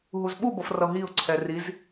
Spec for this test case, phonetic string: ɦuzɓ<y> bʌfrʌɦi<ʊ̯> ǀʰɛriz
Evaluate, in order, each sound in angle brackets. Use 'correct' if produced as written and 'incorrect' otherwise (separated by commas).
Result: incorrect, correct